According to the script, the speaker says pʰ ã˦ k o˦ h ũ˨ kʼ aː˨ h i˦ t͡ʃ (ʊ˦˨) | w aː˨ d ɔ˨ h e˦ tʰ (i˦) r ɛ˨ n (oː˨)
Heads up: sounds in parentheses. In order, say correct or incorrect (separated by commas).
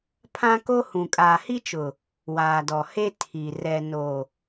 incorrect, incorrect, correct